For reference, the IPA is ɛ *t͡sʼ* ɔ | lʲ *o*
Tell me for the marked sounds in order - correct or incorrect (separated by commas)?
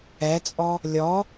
correct, incorrect